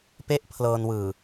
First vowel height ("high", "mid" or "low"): mid